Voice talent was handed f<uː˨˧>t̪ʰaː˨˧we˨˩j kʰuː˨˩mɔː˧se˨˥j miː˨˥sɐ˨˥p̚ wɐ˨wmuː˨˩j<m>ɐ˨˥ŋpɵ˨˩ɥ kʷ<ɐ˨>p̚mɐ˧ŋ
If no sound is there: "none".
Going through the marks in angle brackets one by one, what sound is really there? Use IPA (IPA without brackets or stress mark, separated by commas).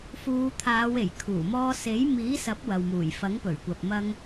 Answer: uː˨˧, f, ɐ˨